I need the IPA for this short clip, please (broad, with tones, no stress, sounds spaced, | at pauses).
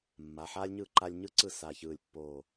mː a˩˧˩ ħ aː˥ lʲ ɲ ɯː˥˩ ǃ a˥ lʲ ɲ ɯ˥ ǀ ɯ˥˩ s aː˧˩ ç ɯː˧˩ lʲ pː oː˧˩